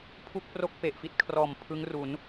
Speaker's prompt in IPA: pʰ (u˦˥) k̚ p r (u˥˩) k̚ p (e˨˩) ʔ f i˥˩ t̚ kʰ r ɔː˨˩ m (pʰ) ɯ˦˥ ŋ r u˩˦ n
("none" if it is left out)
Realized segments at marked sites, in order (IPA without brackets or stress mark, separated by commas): u˥˩, o˥˩, e˨˩, pʰ